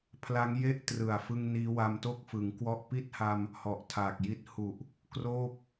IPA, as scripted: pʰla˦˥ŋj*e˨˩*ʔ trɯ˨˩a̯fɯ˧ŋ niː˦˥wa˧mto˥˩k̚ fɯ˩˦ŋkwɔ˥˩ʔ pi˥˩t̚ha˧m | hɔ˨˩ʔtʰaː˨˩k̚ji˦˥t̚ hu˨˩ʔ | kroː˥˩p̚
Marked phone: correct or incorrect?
incorrect